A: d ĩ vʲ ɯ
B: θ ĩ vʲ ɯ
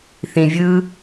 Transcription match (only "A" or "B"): B